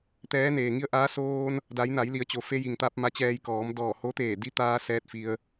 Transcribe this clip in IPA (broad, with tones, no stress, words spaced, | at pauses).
t̪ɛː˧˥neː˩ ŋi˧˥ə̯ʔaː˧˥ soː˧n | da˩˧jna˩˧jli˩˧ə̯ t͡ɕo˩fe˧ji˩ŋt̪a˧p̚ ma˧˥t͡ɕɛː˧jkɔː˩˧m dɔː˧˩ ho˧˥t̪eː˧˩ di˧˥t̪aː˧ sɛː˧t̚ fi˧ə̯